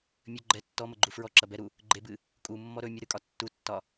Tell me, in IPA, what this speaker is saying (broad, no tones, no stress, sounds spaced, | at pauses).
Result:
mʲ ɵ ɡ͡ǃ ɛ tː ɔ m ə ɡ͡ǃ u f ɹ ɔ ǁ ɐ b ɛ ɾ u | ɡ͡ǃ e b ɨ | kʼ u mː ɔ ɾ ɵ mʲ ə ɾ ɨ kʼ ɒ tː u tː ɒ